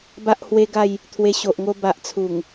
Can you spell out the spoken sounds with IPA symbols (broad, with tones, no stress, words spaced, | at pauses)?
ba˦ʔhwe˦ɡa˥˧j | t̪ʰwe˧ɕo˨ʔŋo˧ ba˨ʔ t͡sʰu˨˩ŋ